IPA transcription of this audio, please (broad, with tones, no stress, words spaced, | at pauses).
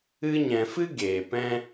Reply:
ɨ˧ɲɛ̃˨fɨ˦ ɡeː˨ pɛ̃˦